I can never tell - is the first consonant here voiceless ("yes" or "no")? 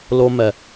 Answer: no